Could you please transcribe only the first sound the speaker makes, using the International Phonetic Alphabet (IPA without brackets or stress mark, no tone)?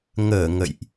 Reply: ŋ